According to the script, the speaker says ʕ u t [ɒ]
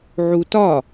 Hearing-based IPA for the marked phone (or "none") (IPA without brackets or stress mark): ɒ